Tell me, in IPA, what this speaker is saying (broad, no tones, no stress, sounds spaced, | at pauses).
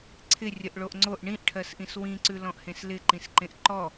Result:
ǀʰ ɪ rʲ ə ʔ ɭ o ʔ ŋ͡ǀ o ʔ ɳ ĩ ʔ ʈʰ ɜ s ʔ ĩ s w ĩ ǀ ʉ l ɔ̃ ʔ h ẽ s l ɪ ǃ ĩ s ǃ ẽ ʔ ǃ ɔ